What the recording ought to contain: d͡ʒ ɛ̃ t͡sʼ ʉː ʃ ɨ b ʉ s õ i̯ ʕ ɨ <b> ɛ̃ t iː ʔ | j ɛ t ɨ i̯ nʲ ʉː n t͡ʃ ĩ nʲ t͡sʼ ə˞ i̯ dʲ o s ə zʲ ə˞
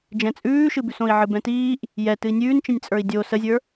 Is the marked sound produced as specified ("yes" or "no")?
yes